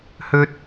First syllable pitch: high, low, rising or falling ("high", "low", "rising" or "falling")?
high